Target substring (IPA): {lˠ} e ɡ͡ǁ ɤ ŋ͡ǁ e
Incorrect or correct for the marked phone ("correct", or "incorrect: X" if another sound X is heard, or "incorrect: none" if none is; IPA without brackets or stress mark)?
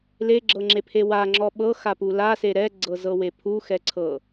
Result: incorrect: l